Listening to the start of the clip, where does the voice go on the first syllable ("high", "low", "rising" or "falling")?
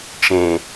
low